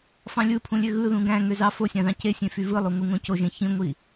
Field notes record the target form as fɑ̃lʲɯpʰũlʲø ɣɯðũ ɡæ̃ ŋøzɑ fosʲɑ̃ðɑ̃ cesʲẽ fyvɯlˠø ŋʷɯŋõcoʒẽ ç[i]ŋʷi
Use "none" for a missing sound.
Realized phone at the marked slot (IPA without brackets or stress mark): ĩ